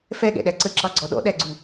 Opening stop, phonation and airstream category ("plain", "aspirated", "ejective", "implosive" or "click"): implosive